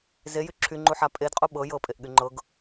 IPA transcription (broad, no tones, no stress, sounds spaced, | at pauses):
z e j y ǁʰ y ŋ͡ǃ u ħ a pʼ e d qʼ u ɓ ɤ j ɤ pʼ e ʔ ɠ y ŋ͡ǃ ɤ ɡ